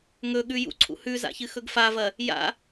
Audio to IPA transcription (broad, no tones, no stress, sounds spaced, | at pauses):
ŋ ɵ ɠ ʉ j ṵ ǀʰ ṵ h ʉ z a̰ ç ɨ x ɵ ɡ f a v ɐ | j a̰